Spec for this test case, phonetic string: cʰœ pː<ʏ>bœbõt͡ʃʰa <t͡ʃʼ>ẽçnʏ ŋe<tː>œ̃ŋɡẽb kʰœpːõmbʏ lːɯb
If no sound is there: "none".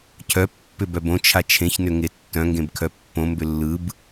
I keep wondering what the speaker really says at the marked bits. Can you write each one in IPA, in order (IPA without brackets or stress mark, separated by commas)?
ʏ, t͡ʃʰ, tː